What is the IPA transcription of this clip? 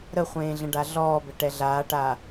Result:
ɾ ə χʷ ẽː ɮ ə̃ ɖ a ɮ ɔː b ɘ ʈ ɛ ɮ aː ʈ aː

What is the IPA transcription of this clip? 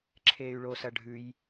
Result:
ǁʰ eː y̯ ɭ o s ɐ ɖʱ ʉ j

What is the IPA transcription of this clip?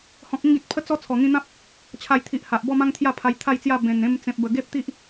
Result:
h ɔ̃˨ k̚ ĩ˥˧ ɡ ĩ˨ t̚ pʰ ə˧ t͡s ɔ˧ t͡sʰ ɔ˨˩ ŋ ĩ˧ n̪ ã˦ p̚ | t͡ɕʰ a˨˩ j t̪ʰ i˨ ʔ h a˨ ʔ b ɔ˥˧ m ã˦ ŋ t̪ʰ j a˥˧ pʰ a˧ j t̪ʰ a˥˧ j t͡s j a˥˧ b ẽ˨˩ n ẽ˧ m t͡s ẽ˨ p̚ b ə˨˩ ɡ e˦ p̚ t̪ i˦ ʔ

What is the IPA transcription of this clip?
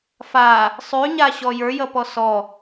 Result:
f a | sˤ ʉ ɲ a ɕ ɔ j ə˞ j ʌ p ɔ s ɔ

